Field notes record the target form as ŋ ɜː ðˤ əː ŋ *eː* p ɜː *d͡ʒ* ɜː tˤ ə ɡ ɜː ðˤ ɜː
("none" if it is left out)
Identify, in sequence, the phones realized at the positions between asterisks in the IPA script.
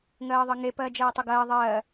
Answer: e, d͡ʒ

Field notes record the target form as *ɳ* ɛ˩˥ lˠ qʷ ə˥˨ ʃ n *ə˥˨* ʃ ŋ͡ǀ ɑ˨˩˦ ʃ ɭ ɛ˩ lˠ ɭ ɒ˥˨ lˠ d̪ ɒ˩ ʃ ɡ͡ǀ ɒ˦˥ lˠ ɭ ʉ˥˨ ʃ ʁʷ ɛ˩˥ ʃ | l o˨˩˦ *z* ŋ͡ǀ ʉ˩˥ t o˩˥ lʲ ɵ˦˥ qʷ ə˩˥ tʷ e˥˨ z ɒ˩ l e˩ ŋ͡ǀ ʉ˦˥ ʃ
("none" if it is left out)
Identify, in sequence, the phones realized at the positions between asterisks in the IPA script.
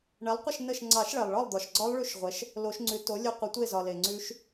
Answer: ɳ, ə˥˨, ʃ

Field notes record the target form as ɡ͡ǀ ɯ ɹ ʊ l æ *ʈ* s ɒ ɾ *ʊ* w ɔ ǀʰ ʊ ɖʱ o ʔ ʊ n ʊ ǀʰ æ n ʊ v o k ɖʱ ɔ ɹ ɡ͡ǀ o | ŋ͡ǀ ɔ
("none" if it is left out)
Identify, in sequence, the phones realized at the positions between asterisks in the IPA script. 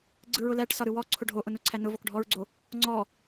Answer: ʈ, ɯ

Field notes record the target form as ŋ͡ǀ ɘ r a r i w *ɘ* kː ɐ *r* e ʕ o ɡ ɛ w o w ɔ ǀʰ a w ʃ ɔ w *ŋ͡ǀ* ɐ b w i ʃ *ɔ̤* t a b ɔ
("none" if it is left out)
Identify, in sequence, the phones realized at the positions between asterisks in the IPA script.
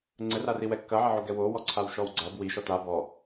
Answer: ɛ, ʕ, ɡ͡ǀ, ɔ

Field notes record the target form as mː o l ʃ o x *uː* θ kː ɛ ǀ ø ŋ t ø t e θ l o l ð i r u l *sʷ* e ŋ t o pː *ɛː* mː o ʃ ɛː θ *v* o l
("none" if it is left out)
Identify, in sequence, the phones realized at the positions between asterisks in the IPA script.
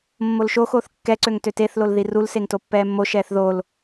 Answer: oː, s, ɛː, ð

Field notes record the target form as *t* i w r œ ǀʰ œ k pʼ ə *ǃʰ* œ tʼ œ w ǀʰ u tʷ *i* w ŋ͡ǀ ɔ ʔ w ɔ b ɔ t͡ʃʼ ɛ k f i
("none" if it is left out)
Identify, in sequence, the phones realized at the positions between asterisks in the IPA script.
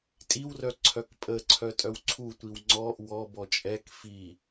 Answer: tʼ, ǀʰ, i

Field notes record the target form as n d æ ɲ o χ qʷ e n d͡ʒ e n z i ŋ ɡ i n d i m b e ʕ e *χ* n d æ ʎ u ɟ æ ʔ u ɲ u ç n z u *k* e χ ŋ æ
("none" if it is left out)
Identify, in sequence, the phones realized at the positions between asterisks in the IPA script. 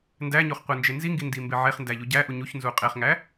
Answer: χ, qʼ

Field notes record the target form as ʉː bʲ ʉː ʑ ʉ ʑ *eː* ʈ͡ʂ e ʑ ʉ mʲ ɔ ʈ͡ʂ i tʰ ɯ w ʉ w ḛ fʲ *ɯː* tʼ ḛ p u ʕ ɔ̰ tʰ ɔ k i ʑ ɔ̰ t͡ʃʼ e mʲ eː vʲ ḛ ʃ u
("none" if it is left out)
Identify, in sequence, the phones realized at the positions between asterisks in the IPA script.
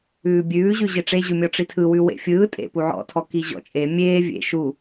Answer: e, ɯː

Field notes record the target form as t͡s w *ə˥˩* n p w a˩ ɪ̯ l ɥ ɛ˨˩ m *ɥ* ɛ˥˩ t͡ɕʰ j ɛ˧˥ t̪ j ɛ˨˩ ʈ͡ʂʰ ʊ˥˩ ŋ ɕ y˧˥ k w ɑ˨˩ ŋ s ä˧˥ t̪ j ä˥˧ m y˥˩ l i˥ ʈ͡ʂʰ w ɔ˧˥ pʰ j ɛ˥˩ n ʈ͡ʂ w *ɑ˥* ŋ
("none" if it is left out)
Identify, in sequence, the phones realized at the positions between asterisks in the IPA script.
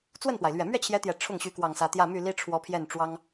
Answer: ə˥˩, ɥ, ɑ˥

